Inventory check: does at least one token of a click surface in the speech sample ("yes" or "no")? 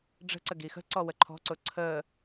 yes